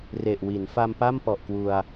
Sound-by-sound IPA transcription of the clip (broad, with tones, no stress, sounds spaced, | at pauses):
r e˨˩ ʔ w i˩˦ n f a˧ m p a˥˩ m p ɔ˨˩ ʔ k w u˧ a̯